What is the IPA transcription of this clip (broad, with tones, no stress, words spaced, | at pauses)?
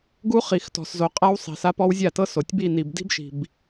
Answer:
ɡu˦χi˨x tɔ̤˨szo˨ qʼa˦wsˤi̤˨sa˦pɔ˦w zʲa˦˨tɤ˦so˨tʲ bi˦˨ni˨b di̤˦bʃi̤˨b